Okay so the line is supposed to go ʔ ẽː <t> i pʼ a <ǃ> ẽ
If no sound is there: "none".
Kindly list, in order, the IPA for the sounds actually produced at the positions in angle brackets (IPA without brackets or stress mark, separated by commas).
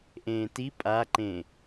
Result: t, ǃ